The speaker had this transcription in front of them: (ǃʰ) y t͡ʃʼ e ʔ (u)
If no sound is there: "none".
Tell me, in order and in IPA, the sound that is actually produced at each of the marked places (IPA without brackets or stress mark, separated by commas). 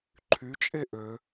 ǃʰ, ø